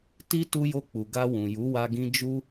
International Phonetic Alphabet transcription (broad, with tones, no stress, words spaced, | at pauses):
ti˦ tu˧jo˧k͡pu˨ ɡa˧ wũ˨ju˨˦wa˧ɡĩ˧ d͡ʒu˦